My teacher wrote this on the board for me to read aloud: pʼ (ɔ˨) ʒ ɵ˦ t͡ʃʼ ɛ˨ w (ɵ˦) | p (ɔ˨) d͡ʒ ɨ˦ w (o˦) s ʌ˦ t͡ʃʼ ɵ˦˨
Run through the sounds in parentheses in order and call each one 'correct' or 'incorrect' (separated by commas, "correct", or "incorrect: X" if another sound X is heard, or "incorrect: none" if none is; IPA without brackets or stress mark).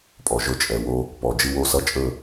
correct, incorrect: o˦, correct, correct